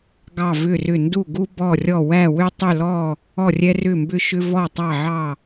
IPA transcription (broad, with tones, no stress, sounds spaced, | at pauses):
ɡ ɑ˧˩ v ʏ˧˩ r ʏ˧˩ n d u˧˩ ɡ u˧ b ɔ˧˩ rʲ ɔ˧˩ w æ˧˩ w ʏ˧ tˤ ʏ˧˩ l ɔ˧˩ | ɔ˧˩ rʲ ɛ˧ r ʏ˧˩ m b ʏ˧˩ ʃ ʏ˧ v ɔ˧˩ tˤ ɑ˧˩ ʕ ɑ˧˩